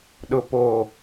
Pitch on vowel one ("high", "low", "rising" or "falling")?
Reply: low